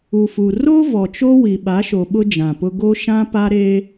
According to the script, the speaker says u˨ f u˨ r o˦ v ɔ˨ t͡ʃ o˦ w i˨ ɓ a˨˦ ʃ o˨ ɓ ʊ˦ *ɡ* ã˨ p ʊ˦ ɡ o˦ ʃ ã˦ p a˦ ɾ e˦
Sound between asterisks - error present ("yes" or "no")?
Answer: yes